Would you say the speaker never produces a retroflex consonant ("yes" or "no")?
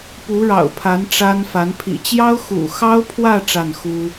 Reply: no